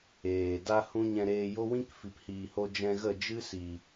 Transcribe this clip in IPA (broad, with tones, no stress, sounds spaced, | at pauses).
eː˨ d a˦ h ũ˦ ɲ ɛ̃˧ ɾ eː˧ j o˦ w ĩ˦ k f i˨ p h iː˨ h o˧ d͡ʒ ɛ̃˧ ɣ ə˦˨ d͡ʒ ɨ˦ s i˨